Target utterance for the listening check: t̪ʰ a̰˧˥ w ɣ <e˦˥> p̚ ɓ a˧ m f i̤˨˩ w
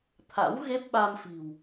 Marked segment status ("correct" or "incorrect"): correct